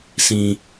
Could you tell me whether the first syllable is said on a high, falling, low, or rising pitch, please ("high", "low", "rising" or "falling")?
high